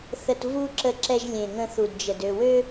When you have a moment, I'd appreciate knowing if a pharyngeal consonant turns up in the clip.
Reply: no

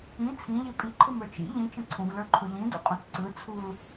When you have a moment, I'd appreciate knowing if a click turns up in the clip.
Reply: yes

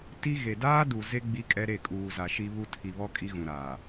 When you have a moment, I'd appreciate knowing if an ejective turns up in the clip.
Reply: yes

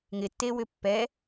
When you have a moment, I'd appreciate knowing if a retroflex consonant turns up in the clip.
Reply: no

